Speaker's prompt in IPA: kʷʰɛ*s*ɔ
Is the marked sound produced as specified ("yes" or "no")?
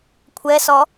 yes